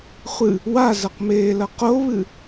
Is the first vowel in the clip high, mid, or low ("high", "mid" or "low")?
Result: high